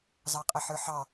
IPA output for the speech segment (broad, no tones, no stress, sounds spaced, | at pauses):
z ɑ qʼ ə ħ ə˞ ħ ɑ